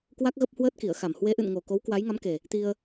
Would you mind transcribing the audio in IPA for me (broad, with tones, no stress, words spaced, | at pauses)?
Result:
kwa˦˥k̚ ɣə˦˥p̚hwəː˦˥t̚ki˧˩ə̯xa˧˩m hwe˨˦ʔɨ̰˧˨nŋo˨˩ ko˨˦wkwa˨˦jŋa˨˦mke˨˩ | t̪i˧ə̯